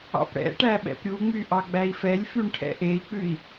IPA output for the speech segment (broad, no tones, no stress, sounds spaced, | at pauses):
ɑ̰ p ɽ ɛ̰ ʈ æ ɓ ɛ̰ p ɾʲ u ŋ͡m y ʔ ɑ ɡ͡b æ i̯ f ɛ lʲ f y ɳ ʈʰ ɛ̰ ʔ e i̯ k͡p ʉ i̯